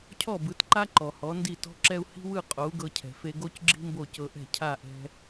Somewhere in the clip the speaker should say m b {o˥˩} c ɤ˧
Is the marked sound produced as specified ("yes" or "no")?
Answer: yes